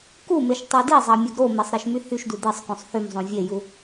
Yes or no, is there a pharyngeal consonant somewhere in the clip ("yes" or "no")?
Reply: no